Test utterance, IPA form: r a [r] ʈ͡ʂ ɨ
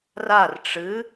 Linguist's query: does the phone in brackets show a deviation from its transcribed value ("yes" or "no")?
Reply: no